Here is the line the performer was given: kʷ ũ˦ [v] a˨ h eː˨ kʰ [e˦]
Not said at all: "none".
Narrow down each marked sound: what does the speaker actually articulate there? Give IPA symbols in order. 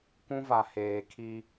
v, i˦

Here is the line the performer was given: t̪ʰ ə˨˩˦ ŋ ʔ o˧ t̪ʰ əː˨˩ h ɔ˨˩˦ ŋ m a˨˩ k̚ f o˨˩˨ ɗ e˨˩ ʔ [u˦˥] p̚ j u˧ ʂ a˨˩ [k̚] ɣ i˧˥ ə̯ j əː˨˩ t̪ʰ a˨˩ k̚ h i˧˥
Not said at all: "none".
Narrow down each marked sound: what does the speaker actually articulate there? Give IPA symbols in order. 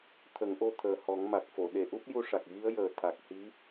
u˦˥, k̚

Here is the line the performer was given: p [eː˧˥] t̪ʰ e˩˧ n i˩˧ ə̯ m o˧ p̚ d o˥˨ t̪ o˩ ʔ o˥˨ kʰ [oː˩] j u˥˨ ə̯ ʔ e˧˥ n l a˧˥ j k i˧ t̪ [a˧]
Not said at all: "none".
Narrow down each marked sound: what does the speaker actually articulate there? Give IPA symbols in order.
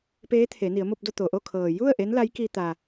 eː˧˥, ɤː˩, a˩

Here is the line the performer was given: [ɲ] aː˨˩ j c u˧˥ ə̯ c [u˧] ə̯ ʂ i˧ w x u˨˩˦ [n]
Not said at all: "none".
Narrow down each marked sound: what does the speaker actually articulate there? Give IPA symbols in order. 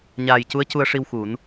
ɲ, u˧, n

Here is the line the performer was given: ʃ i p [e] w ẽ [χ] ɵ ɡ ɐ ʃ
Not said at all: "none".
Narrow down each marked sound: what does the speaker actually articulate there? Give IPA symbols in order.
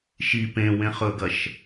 ẽ, χ

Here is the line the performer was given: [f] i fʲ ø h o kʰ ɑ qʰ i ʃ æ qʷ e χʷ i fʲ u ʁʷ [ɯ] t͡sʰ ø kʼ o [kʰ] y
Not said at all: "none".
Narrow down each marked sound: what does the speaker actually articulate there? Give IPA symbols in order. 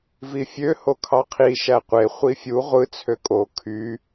v, ɯ, kʰ

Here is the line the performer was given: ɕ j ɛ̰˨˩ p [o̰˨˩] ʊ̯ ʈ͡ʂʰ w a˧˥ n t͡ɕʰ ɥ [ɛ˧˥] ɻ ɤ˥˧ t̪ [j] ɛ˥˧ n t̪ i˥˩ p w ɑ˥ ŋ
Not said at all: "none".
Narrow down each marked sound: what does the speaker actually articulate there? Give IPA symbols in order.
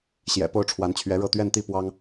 o˥, ɛ˧˥, ɥ

